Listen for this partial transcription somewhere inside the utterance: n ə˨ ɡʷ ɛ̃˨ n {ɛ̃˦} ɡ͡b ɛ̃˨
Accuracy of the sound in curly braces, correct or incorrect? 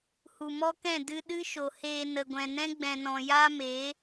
correct